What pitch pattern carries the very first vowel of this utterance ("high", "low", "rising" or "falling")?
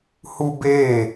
high